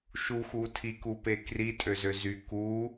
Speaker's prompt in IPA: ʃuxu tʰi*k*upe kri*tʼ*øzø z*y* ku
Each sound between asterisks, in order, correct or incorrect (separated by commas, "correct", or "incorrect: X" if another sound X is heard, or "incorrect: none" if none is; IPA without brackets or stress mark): correct, correct, correct